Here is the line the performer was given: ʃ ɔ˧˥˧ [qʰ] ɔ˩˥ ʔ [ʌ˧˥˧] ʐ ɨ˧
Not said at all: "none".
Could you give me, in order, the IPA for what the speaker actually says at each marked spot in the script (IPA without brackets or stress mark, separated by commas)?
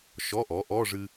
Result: ʔ, ɔ˧˥˧